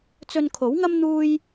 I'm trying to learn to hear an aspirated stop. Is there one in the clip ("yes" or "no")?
yes